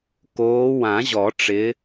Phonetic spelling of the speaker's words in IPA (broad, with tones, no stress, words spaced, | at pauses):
koː˨˦wã˨˩˦ʑɔ˨˩˦ʈ͡ʂɪ˨˦